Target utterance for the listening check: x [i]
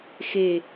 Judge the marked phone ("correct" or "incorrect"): incorrect